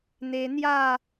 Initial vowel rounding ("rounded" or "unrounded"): unrounded